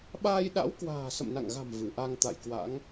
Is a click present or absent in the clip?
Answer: absent